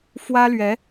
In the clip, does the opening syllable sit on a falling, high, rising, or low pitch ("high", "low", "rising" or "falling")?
high